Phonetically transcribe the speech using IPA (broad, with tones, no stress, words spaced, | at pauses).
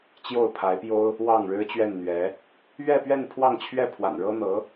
t͡ɕjo˥˩ʊ̯pʰa˧˥ɪ̯pjo˥ʊ̯ | wɑ˥˩ŋɻɻ̩˥t͡ɕɥɛ˥˩nn̪ɥɛ˧˥ | ɥɛ˥˧pɥɛ˥˧n pʰwɑ˥˧ŋt͡ɕʰɥɛ˥˩pʰwa̰˨˩n ɻɤ˥n̪ɤ˧˥